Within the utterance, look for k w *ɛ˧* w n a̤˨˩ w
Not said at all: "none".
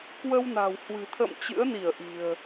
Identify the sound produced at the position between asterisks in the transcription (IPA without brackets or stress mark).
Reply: ə˧